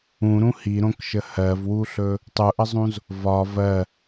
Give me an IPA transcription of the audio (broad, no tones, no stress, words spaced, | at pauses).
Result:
ũɾũ hiɾõkʃə hɜvwuɬɵ | tˤuʔəzˤũz | vɒ vɜ